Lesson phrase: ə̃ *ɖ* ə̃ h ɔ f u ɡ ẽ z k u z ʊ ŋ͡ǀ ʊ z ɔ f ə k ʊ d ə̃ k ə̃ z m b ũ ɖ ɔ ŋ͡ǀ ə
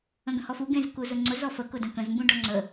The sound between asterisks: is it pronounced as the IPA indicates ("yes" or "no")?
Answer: no